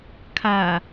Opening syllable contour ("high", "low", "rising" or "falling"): low